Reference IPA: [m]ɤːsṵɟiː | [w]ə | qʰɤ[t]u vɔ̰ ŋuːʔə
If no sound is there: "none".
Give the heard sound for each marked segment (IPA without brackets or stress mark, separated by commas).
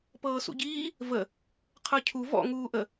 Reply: p, v, cʰ